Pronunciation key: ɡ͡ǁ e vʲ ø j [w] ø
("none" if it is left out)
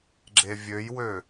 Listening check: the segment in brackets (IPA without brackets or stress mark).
w